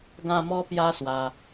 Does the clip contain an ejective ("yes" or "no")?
no